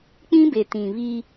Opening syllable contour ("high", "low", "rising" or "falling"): high